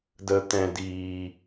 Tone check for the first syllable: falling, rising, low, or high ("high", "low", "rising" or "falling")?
low